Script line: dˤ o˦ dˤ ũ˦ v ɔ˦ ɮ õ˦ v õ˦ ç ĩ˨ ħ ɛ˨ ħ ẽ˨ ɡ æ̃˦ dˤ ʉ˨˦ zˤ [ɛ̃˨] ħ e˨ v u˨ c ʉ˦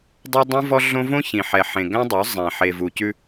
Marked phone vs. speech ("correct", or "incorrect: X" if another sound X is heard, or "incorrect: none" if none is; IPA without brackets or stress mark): correct